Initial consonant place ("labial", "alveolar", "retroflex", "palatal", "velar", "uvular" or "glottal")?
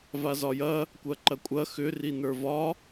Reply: labial